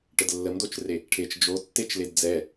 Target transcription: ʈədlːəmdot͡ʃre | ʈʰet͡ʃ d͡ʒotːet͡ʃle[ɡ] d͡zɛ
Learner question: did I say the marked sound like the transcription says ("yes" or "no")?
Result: no